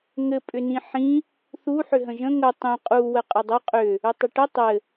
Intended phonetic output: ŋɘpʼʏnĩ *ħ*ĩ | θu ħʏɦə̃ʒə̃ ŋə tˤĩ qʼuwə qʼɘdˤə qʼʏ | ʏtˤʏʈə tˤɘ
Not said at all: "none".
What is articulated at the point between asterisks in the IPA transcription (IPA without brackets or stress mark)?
ħ